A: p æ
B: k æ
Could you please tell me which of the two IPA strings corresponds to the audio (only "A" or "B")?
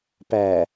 A